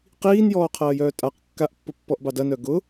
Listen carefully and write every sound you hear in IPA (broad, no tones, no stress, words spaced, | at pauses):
qiːnjɔːqʰɐːjœː tʼaq kːaʔpːʊ pːɔʔbɑdɐnœ ɡʊ